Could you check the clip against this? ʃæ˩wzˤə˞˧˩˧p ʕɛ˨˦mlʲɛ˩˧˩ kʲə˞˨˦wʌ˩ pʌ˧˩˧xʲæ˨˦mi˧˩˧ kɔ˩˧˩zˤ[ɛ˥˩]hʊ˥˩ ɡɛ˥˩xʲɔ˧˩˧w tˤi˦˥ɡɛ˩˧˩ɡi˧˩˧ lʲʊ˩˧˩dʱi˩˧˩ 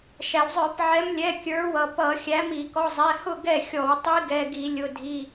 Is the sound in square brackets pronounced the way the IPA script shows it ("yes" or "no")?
no